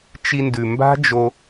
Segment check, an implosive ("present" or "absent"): absent